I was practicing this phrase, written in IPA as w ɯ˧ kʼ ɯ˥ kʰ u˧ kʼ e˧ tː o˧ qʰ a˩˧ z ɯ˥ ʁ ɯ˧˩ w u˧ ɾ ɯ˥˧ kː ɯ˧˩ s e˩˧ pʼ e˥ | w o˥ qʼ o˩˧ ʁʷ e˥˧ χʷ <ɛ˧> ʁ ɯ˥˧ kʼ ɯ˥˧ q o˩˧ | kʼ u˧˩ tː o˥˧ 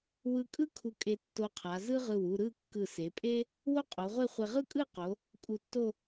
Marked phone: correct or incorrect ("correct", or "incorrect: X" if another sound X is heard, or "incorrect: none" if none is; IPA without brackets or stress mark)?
correct